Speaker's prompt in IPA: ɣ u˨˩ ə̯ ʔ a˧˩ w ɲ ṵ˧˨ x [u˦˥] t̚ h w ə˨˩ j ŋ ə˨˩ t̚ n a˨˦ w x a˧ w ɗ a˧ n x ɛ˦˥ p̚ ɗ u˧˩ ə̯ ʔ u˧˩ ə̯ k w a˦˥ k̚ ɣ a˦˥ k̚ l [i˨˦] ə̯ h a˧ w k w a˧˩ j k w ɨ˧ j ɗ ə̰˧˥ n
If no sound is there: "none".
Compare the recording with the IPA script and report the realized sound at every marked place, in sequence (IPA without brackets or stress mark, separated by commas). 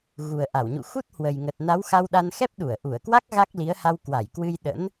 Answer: u˦˥, i˨˦